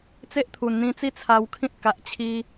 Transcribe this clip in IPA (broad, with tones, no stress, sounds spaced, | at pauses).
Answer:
t͡s e˦ ʔ t̪ʰ u˨˩ n n̪ ĩ˧ t͡s i˦ t͡sʰ a˧ w kʰ ĩ˦ t̚ k a˨ ʔ t͡ɕʰ i˧